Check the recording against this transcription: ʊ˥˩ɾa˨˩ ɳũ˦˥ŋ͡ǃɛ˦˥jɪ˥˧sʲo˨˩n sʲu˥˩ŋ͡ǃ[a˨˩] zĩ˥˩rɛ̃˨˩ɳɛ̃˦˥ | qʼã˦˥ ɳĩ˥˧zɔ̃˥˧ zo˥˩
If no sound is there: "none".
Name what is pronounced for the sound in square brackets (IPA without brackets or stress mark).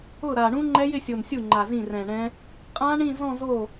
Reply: a˨˩